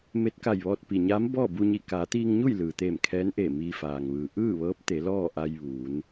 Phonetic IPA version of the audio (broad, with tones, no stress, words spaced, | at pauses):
me˧˥t̚ka˧˩jʋɔː˧t̚ pi˩ɲaː˧˥m bɔː˥˨ bu˧ɲi˧˩ kaː˩˧t̪iː˧ŋɲu˥˨j lɯː˩t̪eː˧˩mkʰɛː˧˥nʔeː˧˩ miː˧faː˩ŋʋɯː˩ ʔɯː˥˨ʋɤː˧˥p̚ t̪e˩˧lɔː˥˨ʔa˧j ʋuː˩˧n